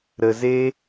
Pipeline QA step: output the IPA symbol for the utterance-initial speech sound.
ɾ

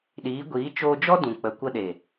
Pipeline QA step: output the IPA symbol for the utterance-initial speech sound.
ɗ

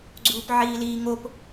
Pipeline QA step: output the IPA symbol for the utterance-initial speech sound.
ɡ͡ǀ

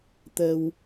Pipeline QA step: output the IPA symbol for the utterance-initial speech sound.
t̪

